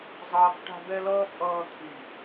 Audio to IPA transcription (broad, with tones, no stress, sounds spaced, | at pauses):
zˤ ʌː˦ k ʈ a̤˦ b ɛ˦ l ʌː˦ pʼ ʌː˦ t̪ʰ i˨